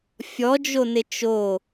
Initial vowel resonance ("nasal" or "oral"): oral